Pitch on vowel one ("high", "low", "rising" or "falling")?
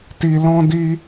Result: low